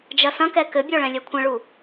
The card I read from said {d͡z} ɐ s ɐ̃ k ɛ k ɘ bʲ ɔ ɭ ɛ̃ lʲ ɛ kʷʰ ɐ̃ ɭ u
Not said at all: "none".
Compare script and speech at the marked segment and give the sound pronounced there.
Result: d͡ʒ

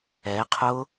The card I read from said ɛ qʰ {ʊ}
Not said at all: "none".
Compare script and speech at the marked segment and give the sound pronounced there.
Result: ʊ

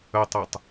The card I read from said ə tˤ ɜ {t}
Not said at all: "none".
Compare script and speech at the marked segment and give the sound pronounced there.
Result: tˤ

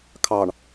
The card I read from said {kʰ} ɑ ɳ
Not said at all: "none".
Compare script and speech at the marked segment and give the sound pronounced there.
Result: kʰ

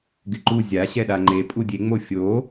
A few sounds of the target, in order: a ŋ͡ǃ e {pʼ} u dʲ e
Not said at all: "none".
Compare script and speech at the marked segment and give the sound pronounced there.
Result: pʼ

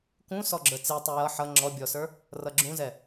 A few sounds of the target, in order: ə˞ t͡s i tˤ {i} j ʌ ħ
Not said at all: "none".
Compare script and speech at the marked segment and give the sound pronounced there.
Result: i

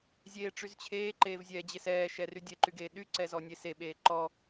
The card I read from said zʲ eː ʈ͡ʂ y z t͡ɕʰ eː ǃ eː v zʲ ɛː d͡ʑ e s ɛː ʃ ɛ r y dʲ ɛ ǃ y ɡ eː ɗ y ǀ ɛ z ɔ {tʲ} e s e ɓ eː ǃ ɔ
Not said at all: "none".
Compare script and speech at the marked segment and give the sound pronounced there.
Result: nʲ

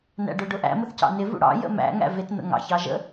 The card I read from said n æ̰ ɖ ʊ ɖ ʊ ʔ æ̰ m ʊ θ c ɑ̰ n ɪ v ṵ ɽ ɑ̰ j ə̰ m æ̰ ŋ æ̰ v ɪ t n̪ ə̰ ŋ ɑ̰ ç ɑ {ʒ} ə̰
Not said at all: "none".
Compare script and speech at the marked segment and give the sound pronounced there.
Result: ʒ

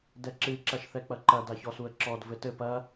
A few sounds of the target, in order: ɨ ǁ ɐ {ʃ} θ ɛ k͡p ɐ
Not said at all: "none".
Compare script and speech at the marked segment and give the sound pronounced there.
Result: ʃ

